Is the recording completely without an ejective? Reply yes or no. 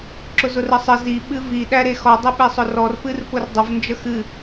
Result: yes